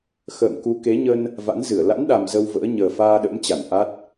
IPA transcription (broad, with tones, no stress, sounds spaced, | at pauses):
x ə̰ː˧˨ m k u˨˦ k e˨˦ ɲ ə˧ n | v a̰˧˥ n z ɨ˧˩ ə̯ l a̰˧˥ n ɗ a˨˩ m z ə˧ w v ə̰ː˧˥ ɲ əː˨˩ f aː˧ ɗ ə̰˧˥ m t͡ɕ a˧˩ n ʔ a˦˥ t̚